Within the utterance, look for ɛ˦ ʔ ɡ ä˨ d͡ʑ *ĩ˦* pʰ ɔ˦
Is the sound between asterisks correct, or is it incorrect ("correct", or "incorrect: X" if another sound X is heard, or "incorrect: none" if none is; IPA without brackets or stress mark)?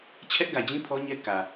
correct